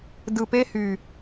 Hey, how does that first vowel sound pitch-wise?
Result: low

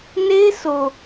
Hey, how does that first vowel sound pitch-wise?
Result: high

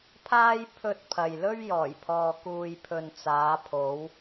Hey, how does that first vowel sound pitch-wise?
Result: high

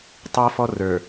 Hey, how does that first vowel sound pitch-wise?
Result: high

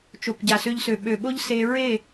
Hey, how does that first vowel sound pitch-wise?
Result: low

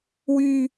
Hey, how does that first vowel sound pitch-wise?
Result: high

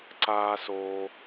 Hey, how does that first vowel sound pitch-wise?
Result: high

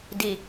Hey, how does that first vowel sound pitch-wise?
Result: low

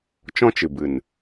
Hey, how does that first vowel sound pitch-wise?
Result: high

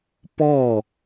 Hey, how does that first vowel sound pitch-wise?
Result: falling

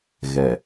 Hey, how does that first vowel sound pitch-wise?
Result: low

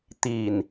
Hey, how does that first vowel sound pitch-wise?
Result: low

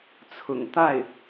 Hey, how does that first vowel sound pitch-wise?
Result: low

